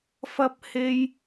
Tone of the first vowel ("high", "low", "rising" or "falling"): high